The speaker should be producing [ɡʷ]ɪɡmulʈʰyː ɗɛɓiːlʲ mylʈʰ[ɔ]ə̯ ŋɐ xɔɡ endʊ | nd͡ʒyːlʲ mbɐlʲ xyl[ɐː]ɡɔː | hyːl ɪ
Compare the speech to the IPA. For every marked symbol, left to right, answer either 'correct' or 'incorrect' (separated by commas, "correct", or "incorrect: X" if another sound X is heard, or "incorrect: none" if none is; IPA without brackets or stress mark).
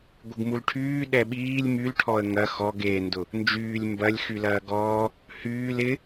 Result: correct, correct, correct